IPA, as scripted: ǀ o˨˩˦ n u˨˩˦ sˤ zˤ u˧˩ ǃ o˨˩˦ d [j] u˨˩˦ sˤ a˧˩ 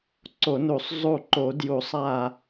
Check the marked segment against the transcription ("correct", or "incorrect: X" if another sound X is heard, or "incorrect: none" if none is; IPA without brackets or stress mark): correct